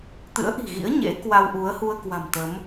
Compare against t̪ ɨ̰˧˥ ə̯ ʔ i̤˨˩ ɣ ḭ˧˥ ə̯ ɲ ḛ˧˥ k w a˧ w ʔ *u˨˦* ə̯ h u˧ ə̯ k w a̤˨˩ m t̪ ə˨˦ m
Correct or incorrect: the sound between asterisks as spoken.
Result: correct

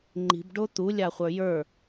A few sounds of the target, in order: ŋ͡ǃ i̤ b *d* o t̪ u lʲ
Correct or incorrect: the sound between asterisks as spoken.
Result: incorrect: ɖ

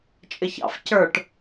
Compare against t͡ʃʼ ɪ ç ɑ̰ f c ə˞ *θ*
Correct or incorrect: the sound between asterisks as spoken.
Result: incorrect: ʈ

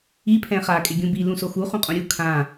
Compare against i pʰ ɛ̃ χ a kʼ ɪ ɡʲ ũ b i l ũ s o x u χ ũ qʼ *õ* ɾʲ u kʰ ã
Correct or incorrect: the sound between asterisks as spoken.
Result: correct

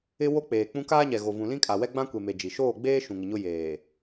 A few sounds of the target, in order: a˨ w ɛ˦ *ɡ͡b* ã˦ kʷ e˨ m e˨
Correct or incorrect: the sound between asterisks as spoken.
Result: correct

